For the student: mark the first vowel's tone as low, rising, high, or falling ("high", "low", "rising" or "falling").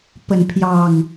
rising